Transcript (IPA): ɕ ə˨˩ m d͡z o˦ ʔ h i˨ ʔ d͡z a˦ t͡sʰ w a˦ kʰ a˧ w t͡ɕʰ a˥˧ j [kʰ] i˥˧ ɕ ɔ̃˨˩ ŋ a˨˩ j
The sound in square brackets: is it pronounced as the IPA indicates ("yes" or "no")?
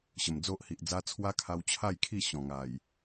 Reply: yes